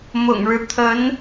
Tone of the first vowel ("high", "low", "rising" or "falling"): low